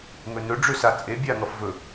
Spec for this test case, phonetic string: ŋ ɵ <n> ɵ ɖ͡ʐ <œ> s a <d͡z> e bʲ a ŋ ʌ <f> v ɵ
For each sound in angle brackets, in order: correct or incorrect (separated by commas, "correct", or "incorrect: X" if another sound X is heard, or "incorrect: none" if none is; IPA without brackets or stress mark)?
correct, incorrect: ø, incorrect: t͡sʼ, correct